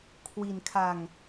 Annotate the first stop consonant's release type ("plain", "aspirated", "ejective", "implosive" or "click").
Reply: aspirated